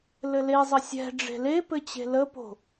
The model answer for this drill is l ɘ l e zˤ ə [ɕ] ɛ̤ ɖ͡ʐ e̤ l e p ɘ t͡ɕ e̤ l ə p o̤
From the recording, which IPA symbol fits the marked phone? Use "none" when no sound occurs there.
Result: sʲ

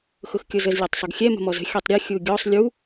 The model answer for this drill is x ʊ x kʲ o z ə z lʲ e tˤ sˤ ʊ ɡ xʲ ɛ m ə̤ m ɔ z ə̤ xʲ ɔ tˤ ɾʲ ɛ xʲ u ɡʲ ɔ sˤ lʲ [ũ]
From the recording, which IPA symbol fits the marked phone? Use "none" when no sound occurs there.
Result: u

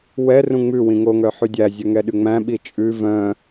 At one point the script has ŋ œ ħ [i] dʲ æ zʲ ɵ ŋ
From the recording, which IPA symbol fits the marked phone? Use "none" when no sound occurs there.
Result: y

